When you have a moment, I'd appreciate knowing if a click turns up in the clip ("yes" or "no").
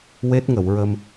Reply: no